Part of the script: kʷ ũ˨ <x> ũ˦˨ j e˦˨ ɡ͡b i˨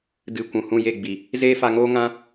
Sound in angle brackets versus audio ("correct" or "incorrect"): incorrect